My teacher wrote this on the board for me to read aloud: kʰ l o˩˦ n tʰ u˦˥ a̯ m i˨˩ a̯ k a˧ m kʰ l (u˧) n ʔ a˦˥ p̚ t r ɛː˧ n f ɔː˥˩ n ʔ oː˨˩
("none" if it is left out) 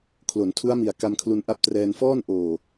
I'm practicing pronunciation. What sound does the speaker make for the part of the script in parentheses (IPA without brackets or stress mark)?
u˧